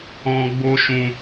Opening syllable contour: high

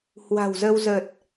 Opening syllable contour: low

